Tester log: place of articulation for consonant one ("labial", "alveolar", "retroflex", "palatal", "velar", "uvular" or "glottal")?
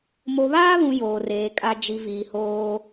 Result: labial